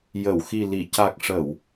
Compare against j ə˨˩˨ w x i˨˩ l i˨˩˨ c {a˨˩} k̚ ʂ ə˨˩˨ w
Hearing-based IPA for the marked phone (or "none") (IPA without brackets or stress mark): a˨˩